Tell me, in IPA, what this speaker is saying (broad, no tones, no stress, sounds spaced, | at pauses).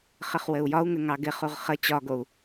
χ ɘ χ w ɘ u̯ j ɒ u̯ ŋ ɘ ŋ ɑ ɡ ɪ χ u ʁ χ ə t͡ɕ ɒ ɡ o u̯